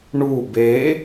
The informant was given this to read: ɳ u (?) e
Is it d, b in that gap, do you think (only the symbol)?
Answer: b